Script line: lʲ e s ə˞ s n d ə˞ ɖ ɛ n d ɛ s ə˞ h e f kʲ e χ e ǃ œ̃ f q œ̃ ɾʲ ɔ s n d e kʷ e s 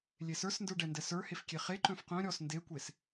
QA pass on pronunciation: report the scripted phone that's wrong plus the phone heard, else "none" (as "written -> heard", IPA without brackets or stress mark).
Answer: none